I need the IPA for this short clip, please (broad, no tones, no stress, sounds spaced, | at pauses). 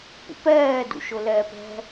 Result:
p ṵ p ɛː d ṵ ʃ ʊ l ɛː p ɛ̤